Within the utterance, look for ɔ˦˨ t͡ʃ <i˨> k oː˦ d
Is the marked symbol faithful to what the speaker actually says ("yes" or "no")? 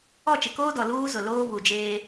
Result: no